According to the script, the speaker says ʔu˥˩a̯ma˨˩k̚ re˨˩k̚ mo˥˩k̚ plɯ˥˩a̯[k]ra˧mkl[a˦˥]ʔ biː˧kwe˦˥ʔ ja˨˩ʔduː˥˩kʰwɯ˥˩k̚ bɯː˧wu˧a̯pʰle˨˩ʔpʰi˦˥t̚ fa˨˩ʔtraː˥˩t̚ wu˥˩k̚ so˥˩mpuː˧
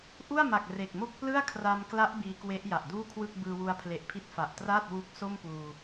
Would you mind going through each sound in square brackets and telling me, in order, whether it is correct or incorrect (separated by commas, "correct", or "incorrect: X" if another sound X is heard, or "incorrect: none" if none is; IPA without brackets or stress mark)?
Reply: incorrect: kʰ, correct